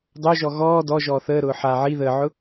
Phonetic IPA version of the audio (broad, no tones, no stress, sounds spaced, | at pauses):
dˤ o ʒ ɔ ɣ ɔː d ɔ ʒ ɔː θ əː ɾ ʊː ħ a ʕ i ð əː ʕ ʊ